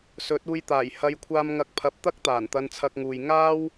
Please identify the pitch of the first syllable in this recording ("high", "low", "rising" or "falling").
rising